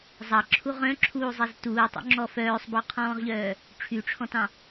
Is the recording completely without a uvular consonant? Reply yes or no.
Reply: no